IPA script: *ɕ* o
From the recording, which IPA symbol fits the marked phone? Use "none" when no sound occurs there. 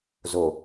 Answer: z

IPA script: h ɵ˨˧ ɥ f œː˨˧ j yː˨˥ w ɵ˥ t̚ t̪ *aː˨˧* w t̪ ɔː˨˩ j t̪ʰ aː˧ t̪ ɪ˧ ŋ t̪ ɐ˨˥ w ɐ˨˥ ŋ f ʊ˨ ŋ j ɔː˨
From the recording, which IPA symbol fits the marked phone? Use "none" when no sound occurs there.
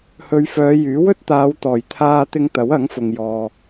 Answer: aː˨˧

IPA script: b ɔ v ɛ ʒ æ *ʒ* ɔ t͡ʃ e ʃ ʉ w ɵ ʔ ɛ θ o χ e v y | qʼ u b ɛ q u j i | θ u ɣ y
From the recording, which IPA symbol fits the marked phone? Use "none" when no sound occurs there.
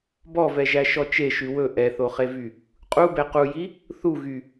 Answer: ʃ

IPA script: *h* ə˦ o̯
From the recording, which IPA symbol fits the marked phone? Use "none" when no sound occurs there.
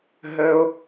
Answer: ɦ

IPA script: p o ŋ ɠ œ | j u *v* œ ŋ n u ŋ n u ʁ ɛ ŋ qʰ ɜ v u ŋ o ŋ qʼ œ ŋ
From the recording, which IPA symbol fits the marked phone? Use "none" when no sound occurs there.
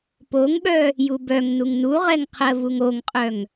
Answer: b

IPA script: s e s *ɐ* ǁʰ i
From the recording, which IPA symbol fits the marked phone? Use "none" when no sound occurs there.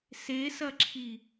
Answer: ɐ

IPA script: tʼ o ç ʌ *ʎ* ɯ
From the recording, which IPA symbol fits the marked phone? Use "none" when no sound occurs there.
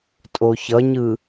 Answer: ɲ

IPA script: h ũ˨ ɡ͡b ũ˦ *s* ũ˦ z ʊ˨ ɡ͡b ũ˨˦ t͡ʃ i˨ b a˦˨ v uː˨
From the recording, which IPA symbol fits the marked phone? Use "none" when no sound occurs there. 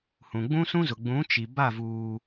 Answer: s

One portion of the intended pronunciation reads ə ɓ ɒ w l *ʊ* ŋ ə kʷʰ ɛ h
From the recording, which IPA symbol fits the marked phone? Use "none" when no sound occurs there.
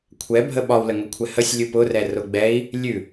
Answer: ə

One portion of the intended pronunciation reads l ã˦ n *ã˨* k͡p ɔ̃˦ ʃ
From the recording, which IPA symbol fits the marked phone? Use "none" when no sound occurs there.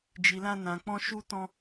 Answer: ã˧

